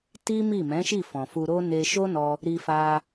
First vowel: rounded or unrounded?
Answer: unrounded